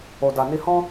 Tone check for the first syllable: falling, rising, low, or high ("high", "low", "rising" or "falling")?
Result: low